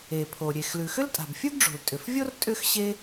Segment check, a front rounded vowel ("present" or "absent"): present